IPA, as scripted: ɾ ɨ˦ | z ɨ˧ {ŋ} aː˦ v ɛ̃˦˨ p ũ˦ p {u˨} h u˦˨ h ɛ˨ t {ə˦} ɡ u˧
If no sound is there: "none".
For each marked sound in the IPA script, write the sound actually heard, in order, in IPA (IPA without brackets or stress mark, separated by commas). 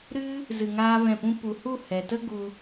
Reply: ŋ, u˨, ə˦